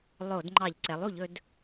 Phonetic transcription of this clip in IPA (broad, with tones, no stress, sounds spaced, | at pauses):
lˠ o˧˩˧ d ŋ͡ǃ ɑ˧˩˧ ʎ ǀ ɛ˩˥ lˠ u˧˩˧ ʎ ɵ˩˥ d